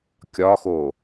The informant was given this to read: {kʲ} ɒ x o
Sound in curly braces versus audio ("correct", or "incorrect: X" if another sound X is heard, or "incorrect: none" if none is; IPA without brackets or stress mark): correct